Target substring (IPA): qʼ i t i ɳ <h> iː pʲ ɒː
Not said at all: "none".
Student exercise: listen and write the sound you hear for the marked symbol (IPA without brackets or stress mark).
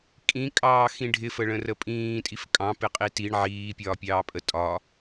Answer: ʕ